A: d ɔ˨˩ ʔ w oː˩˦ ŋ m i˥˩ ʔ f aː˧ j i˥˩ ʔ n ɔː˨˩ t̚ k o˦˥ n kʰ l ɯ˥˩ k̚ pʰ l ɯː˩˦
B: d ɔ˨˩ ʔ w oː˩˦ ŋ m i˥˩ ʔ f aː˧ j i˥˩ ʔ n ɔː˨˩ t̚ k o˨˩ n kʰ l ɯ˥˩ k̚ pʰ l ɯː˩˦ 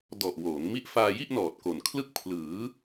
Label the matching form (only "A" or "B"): B